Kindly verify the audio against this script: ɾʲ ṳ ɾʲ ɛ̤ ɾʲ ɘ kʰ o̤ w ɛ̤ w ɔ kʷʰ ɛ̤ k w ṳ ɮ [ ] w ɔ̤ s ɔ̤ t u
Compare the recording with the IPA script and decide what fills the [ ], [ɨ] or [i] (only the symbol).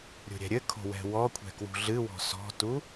ɨ